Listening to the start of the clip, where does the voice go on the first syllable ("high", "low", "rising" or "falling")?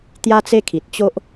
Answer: high